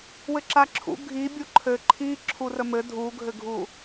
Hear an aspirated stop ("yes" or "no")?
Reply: yes